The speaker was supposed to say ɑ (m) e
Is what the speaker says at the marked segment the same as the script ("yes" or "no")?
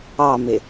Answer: yes